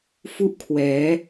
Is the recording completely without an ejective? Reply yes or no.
yes